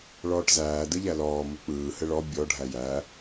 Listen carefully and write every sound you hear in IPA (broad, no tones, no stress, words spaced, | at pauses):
ɭɔːʈzæː dɯʎælɔː muk͡pɯː hɘɭɔ bʲɔ ɖʱæjæ